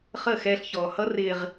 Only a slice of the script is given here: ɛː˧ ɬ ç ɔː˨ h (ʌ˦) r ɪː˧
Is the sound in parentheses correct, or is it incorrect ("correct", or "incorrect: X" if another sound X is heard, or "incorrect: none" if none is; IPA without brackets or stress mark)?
correct